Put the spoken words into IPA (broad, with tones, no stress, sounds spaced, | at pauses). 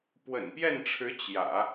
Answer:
p w ə̰˨˩ n p j ɛ˥˩ n ʈ͡ʂʰ ɻ̩˧˥ t͡ɕ j ä̰˨˩˦